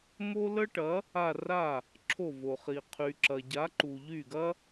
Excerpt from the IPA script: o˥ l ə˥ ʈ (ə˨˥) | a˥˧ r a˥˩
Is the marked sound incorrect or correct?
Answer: incorrect